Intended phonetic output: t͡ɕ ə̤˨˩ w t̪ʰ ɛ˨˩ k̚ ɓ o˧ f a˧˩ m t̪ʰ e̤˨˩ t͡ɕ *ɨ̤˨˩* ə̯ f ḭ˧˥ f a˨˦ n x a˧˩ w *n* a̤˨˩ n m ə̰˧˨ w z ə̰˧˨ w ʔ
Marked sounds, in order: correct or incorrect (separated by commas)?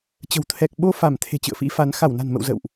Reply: incorrect, correct